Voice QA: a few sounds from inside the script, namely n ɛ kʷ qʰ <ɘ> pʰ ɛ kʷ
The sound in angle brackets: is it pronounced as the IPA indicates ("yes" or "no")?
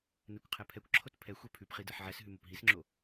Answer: no